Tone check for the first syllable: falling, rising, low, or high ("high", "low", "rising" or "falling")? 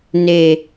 low